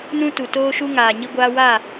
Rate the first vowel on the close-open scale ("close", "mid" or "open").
close